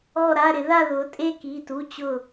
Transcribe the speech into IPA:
ɔ˥˧ ɾ a˧˥˧ ɾ ɪ˨˥ ð a˥˧ ð ʊ˨˥ tʼ e˥˧ k i˧˥˧ t u˧˥˧ t͡ɕ ʊ˥˧

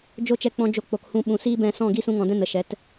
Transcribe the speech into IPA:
d͡ʒ o˦ t͡ʃ ɛ˧ k͡p ɔ̃˧ d͡ʒ o˧ k͡p o˨ k h ũ˧ ɓ ũ˨ s iː˦ b ɛ̃˧ s ɔ̃˦˨ ɡ i˦ s ũ˧ ŋ ɔ̃˨ d ɛ̃˧ n ə˨ ʃ ɛ˨˦ t

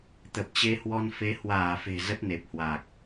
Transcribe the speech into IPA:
t̪ ə˨˩ p̚ t͡ɕ e˧ h w ɔ˧ n f e˨˦ h w aː˧˩ f e̤˨˩ z ə˦˥ t̚ n e˨˩ p̚ h w aː˨˩ k̚

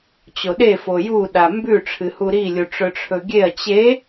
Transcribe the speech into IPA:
t͡ɕ o ɗ e f o j u ɗ a m b ʉ ʈ͡ʂʰ ɨ h u ɾ i lʲ u ʈ͡ʂ ɵ ʈ͡ʂʰ ɵ ɡʲ e ɐ̯ t͡ɕ e

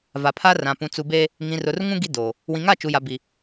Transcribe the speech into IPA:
v a˨ pʰ a˦ r ã˨ p ũ˨ t͡s u˨ b eː˦ | ŋ ĩ˨ r ʊ˨ r ŋ ũ˦ ɡ i˦ d oː˨ | w ĩ˨ ŋ a˦˨ t͡ʃ u˨ j a˨ b i˨

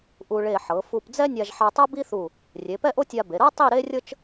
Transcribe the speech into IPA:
ʔ u˧ ɭ e˧˩ ħ ɤ˩˧ f u˧ p d͡z ɛ˥ nʲ a˧ ʒ ħ a˧ tˤ ɤ˥ b i˥ θ u˧˩ | rʲ e˩˧ p ɛ˥ ʔ o˥ tʲ a˧ b e˩˧ ɾ ɤ˥ tˤ i˥˧ ɾ e˥ rʲ ɤ˥ t͡ʃ

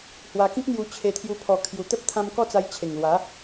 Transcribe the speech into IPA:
h w a˧ k ĩ˦ k̚ n̪ j u˧ t͡ɕʰ e˧ t̪ʰ j u˧ pʰ ɔ˨˩ kʰ j u˨˩ t̪ ə˦ p̚ t̪ʰ ã˧ m k ɔ˥˧ t͡s a˧ j t͡ɕʰ e˨˩ ŋ l w a˨˦

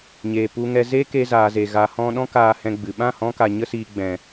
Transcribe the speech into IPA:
ɲ eː˨ p u˨ ŋ ɛ˨ z eː˦ k e˧ z aː˨ z e˨ ɣ a˨ h ɔ̃˧ ɗ ɔ̃˦ k aː˧ h ɛ̃˧ ɡ͡b ɨ˨ ɓ ã˦˨ h ɔ̃˧ k a˨ ɲ ə˧ s iː˨ ɡ͡b ɛ̃˨

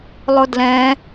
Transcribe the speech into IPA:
lˠ ʊ d l ɛ̃

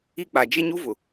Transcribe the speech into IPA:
i˦ k͡p a˨ d͡ʒ e˦ ɲ u˦ v ʊ˨

